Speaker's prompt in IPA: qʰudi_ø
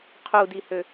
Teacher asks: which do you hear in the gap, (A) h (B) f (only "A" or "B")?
A